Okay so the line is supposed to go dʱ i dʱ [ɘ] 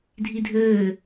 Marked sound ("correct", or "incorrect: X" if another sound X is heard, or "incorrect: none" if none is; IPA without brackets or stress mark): incorrect: ɘː